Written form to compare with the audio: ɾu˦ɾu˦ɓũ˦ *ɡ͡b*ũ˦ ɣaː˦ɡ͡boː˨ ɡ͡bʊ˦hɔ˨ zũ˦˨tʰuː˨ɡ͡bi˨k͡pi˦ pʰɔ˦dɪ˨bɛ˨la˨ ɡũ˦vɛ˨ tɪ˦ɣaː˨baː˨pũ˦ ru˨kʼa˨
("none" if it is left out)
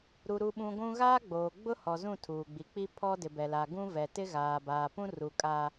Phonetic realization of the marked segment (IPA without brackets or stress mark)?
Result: ɡʷ